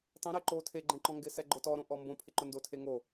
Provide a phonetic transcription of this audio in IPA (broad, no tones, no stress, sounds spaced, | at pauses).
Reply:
tˤ ɛ̃ ɾ ɛ ǃ o tʰ e ɡ͡ǃ ɛ̃ ǃ ɔ̃ ŋ ɡ ɪ s ɛ ɡ͡ǃ ʊ t ɔ ɾ õ ʔ ɔ m b õ pʰ ɪ ǃ ʊ n d o tʰ e ŋ o